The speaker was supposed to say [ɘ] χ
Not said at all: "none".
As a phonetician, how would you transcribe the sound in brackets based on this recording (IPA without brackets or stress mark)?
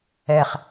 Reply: ɛ